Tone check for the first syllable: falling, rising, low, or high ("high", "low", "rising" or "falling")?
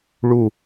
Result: falling